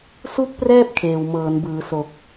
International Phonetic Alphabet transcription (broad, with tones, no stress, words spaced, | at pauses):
su˥˩k̚prɛː˥˩p̚ kʰeː˨˩wmɤː˩˦nbɯː˩˦ so˨˩k̚